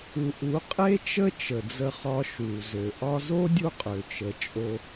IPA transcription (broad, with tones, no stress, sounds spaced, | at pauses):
u˨ ʔ u˨˦ qʼ e˦ t͡ʃ ə˦ t͡ʃ ə˨ d͡z ə˧ χ ɒ˧ ʃ u˨ z ø˨ ʔ ɒ˧ z o˦ dʲ u˦ qʼ ø˨ t͡ʃ ə˨ t͡ʃʼ o˧